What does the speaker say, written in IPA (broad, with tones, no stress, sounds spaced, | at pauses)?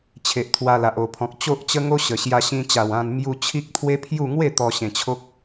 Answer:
t͡ɕʰ e˨ ʔ t̪ʰ w a˧ l a˨ ʔ o˨˩ pʰ ɔ̃˨ k̚ t͡ɕ o˦ ʔ t͡ɕ ə˦ ŋ o˦ ɕ ə˨˩ ɕ j a˧ ɕ ĩ˧ t͡ɕ a˨˩ w ã˧ n m j u˧ t͡ɕʰ i˦ k̚ t̪ʰ w e˦ pʰ j u˥˧ ŋ w e˥˧ t̪ ɔ˧ ɕ ẽ˨˩ t͡ɕʰ o˦ k̚